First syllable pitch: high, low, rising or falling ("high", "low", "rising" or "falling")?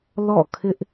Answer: falling